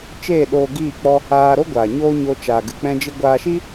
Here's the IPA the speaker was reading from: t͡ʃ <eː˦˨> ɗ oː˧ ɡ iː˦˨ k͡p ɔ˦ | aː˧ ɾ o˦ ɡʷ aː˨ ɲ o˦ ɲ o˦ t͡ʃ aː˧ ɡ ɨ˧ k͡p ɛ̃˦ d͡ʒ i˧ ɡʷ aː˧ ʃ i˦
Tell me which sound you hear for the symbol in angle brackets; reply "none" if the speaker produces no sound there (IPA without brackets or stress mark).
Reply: eː˦˨